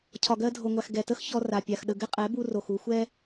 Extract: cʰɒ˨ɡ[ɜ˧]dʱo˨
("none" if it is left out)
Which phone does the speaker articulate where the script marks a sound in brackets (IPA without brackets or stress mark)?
ɜ˧